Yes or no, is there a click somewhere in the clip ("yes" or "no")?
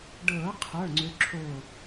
yes